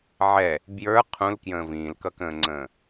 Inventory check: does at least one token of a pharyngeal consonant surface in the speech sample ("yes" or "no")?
yes